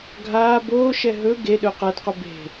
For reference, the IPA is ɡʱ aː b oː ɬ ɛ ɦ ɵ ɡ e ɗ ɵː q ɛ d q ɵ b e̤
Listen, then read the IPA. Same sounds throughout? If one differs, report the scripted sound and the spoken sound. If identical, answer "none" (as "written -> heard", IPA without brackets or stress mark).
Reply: ɬ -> ʃ